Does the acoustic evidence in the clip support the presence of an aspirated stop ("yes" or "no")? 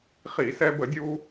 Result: no